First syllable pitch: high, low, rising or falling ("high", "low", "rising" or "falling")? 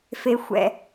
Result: low